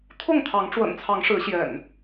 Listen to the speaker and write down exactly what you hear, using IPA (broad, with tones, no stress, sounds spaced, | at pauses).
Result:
t̪ʰ ʊ˥˨ ŋ t̪ʰ ɑ˨˦ ŋ ʈ͡ʂ w ə̰˨˩ n t͡sʰ ɑ˨˦ ŋ ʂ ɻ̩˨˦ ɕ j ɛ̰˨˩ n